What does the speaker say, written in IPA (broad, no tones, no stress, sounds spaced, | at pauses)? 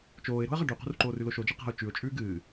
t͡ʃ oː ɪ̯ ɾ o̤ ə̯ ʁ ɐ ɖ ʉ q ṳ r ǃ oː r ʉ l o ʃ o d͡ʒ e q a̤ ʊ̯ t͡ʃ ʉ ʊ̯ t͡ʃʼ ʉː ɡ ɨː